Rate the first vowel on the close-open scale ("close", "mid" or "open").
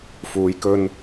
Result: close